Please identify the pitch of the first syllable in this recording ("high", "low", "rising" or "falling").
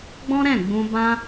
high